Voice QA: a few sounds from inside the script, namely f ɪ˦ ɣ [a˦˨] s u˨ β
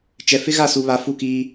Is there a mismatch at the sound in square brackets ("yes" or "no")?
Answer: no